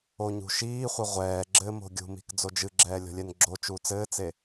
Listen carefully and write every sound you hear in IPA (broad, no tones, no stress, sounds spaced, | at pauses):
o ɲ ṳ ʃ iː χʷ ɘ ʁʷ ɛː ɡ͡ǁ ɘ m o̤ ɡʲ ṳ m i̤ k d͡z o d͡ʒ ɨ ɡ͡ǁ ɛː lʲ ɔ̤ lʲ ɛ n ɡ͡ǁ o t͡ʃ uː t͡s ɘː t͡s e